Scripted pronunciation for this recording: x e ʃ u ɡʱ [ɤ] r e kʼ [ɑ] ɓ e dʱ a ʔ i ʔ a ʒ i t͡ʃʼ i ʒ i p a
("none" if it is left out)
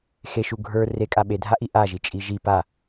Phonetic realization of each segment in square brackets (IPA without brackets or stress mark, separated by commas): ə˞, a